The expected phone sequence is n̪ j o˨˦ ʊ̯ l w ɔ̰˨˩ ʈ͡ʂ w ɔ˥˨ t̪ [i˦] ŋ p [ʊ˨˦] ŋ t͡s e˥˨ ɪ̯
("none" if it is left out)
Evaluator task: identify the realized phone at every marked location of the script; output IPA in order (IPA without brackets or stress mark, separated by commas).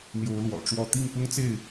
i˥˨, ʊ˦